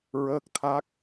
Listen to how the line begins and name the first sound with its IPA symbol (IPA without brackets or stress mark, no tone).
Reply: ɹ